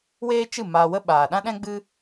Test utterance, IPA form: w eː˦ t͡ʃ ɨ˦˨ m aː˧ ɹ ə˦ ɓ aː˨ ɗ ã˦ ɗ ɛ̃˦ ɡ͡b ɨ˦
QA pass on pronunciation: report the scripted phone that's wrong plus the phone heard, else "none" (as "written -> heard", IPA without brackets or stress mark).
ɹ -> w